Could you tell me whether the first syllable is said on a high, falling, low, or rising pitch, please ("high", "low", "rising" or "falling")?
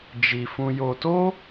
low